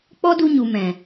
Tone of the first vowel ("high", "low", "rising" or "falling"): high